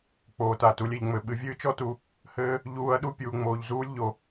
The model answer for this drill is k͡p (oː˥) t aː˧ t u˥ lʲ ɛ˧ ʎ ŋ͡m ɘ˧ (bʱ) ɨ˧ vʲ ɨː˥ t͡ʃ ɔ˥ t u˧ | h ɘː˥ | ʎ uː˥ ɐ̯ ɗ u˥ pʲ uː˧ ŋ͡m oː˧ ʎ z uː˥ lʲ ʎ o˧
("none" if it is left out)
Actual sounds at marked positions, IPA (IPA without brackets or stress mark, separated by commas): oː˧, ɓ